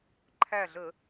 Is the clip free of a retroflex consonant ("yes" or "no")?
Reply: yes